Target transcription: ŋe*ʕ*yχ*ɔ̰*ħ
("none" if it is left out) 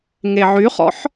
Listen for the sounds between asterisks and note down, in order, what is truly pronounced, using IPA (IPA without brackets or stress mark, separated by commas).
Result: ʕ, ɔ̰